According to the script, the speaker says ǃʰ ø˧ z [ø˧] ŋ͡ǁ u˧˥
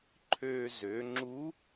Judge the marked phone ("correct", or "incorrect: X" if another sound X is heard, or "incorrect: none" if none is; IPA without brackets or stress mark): incorrect: ø˩˧